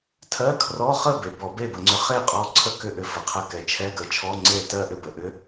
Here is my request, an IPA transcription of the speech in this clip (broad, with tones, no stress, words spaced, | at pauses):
tʰɜ˧˥˧kʰrɔ˧˥˧χə˥˨be˩ bɔ˧˩˧be˥˨bə˧˩˧ŋ͡ǀʏ˧ χe˥˨qʼɔ˧˥ ǀʰə˧˥˧kʏ˧˩˧ʔʏ˩ fə˩qʰə˧ kɛ˩t͡ʃʰɛ˧˥˧ɡə˧˩˧t͡ʃʰɔ˧˥˧ ŋ͡ǀe˥˨ tɜ˥˨ʔʏ˥˨bə˩ ʔʏ˧˥